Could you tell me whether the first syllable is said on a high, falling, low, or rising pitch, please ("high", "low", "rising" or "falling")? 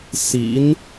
rising